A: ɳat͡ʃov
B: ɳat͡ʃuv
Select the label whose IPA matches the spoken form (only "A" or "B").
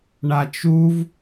B